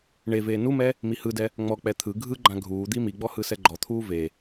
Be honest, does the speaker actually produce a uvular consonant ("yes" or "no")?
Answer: no